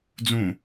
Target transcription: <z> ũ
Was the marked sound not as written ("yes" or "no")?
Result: yes